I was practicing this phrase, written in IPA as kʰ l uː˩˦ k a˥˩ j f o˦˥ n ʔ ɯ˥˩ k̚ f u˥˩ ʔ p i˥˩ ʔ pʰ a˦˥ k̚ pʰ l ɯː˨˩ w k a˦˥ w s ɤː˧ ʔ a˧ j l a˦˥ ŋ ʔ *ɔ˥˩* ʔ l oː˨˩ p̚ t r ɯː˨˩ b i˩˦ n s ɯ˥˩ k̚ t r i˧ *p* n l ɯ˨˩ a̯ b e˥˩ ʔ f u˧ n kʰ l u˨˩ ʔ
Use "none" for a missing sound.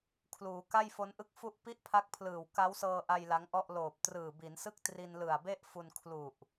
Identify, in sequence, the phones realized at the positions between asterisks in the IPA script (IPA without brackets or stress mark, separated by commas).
ɔ˥˩, none